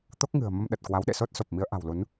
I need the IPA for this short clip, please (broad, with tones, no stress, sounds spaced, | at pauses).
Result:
t̪ o˦˥ k̚ ŋ ɨ̤˨˩ ə̯ m ə˧ m ɗ ə˨˩ t̚ k w a˨˦ w ɗ ḛ˧˨ s o˦˥ t̚ s o˨˩ p̚ m i˨˦ ə̯ ʔ a̤˨˩ w l u˨˦ n